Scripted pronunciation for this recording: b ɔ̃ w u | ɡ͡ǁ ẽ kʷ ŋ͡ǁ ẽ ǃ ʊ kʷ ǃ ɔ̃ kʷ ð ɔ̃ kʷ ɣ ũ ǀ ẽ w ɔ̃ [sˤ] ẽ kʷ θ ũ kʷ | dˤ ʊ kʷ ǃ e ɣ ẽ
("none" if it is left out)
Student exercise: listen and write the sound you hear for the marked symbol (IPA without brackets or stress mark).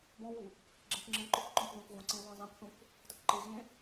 zˤ